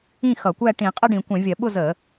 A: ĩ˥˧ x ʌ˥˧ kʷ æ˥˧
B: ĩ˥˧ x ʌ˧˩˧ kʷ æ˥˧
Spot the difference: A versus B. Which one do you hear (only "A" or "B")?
B